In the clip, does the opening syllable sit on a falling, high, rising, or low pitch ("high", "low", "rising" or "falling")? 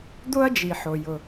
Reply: high